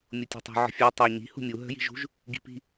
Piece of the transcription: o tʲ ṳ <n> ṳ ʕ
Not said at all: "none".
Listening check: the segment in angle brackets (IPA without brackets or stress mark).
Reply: tˤ